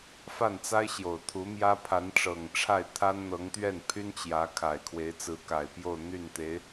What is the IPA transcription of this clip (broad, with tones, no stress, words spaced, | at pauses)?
fa˥˩nt͡sa˥ɪ̯ ɕjo˨˩ʊ̯t̪ʰu˧˥ mjä˥ pʰa˧˥nʈ͡ʂɤ˨˩ŋʈ͡ʂʰa˥˩ɪ̯ t̪ʰa˥nn̪ɤ˧˥ŋt̪ɥɛ˥˩n pʰy˥nt͡ɕjä˧˥ kʰa˨˩ɪ̯ kʰwe˧˥ɪ̯t͡sɹ̩˧˥ka˨˩ɪ̯pjo˥˧ʊ̯ n̪y˥˩nt̪e˧˥ɪ̯